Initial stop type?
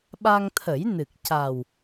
implosive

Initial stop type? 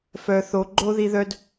click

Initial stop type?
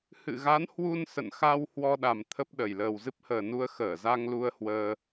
implosive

